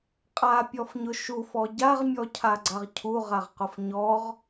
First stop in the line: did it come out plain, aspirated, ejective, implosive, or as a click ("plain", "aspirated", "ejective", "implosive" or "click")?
ejective